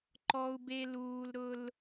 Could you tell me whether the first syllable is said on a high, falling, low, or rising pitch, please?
high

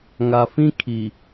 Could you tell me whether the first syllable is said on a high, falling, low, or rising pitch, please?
low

